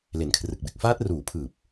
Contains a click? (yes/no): no